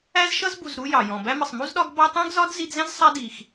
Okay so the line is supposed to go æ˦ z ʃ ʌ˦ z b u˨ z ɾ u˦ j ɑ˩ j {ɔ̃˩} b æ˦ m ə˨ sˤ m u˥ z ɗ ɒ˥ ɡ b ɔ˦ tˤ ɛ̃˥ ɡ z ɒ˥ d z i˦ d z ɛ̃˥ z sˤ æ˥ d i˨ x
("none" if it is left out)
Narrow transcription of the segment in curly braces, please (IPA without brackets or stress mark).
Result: ɔ̃˩